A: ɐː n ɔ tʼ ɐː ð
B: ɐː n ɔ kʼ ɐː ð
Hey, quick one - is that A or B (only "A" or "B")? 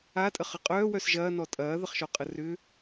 A